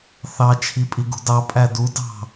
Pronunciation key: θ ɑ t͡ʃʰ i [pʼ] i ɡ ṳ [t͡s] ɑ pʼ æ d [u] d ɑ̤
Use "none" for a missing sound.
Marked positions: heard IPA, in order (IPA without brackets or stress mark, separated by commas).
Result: pʼ, d, u